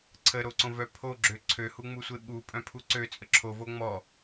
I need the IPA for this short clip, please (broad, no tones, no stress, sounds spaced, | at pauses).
ǀʰ ə ɾ o ǀ õ v œ pʰ o ɡ͡ǁ ø ǀʰ ø h u ŋ͡m u sʷ e ɓ u pʼ œ̃ pʰ u ǀ ø t͡sʼ ə ǁʰ o v o ŋ͡m ɔ